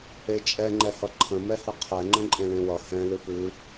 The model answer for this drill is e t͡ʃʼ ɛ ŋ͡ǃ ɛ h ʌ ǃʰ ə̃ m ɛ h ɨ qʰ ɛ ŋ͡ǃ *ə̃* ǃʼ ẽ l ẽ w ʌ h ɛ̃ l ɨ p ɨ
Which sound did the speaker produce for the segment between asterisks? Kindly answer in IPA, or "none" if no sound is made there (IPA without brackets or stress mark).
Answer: ə̃